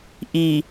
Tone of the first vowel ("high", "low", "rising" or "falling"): low